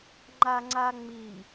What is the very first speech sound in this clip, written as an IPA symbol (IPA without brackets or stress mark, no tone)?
ŋ͡ǃ